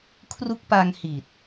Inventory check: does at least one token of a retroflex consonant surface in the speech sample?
no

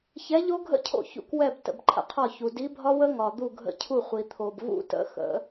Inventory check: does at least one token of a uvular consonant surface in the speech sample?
yes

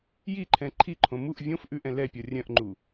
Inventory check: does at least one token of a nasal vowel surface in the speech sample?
yes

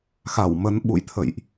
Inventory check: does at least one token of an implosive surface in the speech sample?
yes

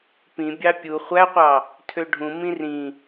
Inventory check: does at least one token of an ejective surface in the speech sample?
no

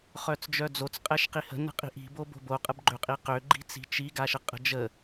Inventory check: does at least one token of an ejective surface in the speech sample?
yes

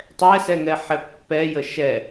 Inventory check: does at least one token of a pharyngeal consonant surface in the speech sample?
yes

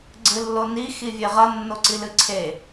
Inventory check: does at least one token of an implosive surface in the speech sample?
no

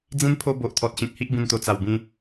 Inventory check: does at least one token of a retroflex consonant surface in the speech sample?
no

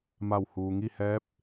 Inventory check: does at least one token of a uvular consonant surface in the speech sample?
no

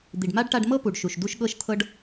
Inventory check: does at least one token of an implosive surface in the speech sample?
yes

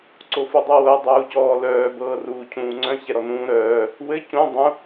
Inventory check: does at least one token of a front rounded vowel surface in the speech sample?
yes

